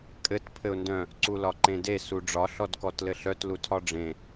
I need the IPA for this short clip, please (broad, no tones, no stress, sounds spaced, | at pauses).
kʼ ɘ t pʰ ɘ ʊ̯ n d œ̃ | ǀ u l ɒ ǃ ẽ d e s u ɖ͡ʐ ɒ ɬ ɔ d k ɔ t l ɘ ɬ œ t l u tʰ ɒ ɖ͡ʐ ẽ